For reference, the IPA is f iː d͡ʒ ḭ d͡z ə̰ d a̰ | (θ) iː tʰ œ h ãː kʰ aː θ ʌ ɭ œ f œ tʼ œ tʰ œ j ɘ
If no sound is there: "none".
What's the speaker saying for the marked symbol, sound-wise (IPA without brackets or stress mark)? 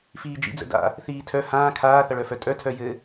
θ